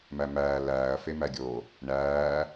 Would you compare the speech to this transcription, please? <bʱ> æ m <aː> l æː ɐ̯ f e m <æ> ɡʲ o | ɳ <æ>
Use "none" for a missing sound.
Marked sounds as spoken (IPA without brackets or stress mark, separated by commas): m, æː, æ, æː